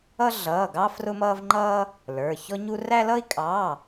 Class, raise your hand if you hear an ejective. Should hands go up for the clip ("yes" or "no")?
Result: yes